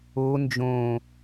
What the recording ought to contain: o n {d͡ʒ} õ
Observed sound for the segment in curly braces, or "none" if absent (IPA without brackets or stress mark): d͡ʒ